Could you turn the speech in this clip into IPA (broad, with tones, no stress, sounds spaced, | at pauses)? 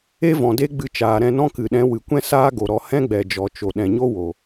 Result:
e˦ v ɔ̃˨ d e˦ ɡ͡b ɨ˧ t͡ʃ aː˨ ɾ ɛ̃˧ n ɔ̃˦ k ɨ˨ ɗ ɛ̃˨˦ w ɨ˨ kʷ ɛ̃˦ s aː˦ ɡ o˨ ɾ ɔ˧ h ɛ̃˦ ɡ͡b ɛ˨ d͡ʒ ɔ˨ t͡ʃ o˨ ɗ ɛ̃˨ ɲ o˦ w o˨